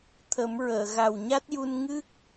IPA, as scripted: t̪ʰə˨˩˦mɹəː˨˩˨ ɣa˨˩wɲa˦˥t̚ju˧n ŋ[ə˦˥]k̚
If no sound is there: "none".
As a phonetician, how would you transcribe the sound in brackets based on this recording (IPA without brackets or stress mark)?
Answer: ɨ˦˥